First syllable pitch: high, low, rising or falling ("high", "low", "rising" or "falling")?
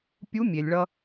rising